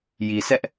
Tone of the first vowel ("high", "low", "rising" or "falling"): low